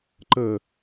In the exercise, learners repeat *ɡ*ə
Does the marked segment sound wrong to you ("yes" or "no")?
yes